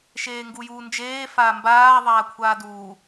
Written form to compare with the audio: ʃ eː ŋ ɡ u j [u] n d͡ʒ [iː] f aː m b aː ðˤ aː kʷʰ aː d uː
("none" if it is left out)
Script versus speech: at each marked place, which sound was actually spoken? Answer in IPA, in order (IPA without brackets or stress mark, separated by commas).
uː, eː